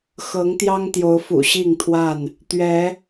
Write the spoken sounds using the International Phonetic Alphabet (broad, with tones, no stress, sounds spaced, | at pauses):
x ɤ˨˦ ŋ t̪ j ɑ˦ ŋ t̪ j o˨˦ ʊ̯ f ṵ˨˩ ɕ i˥˨ ŋ t̪ʰ w a˥˨ n | t̪ ɥ ɛ˨˦